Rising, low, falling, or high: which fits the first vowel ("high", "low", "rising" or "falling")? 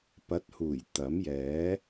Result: rising